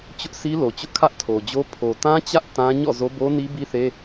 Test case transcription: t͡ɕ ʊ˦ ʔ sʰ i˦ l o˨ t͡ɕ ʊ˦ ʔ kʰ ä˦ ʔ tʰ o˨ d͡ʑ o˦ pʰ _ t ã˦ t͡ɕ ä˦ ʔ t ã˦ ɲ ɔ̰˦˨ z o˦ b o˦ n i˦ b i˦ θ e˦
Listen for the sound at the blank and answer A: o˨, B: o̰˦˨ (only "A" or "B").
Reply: A